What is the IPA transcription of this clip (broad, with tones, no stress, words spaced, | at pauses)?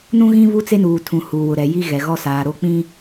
nũ˦ɣĩ˦ βu˦t͡se˦nuː˨tʰũ˨ huː˨wʊ˨ɾɛ˨ji˦ ɣɛ˨ɣɔ˦ saː˨ɾo˦k͡pĩ˦